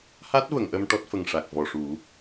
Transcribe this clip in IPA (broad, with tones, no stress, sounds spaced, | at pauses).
h a˦˥ t̚ v ə˨˩˨ ŋ ʔ ə˧ m ʈ ɔ˦˥ t̚ f ə˨˩ ŋ ʂ a˨˩ k̚ v ɔ˨˩ ʂ u˨˩˦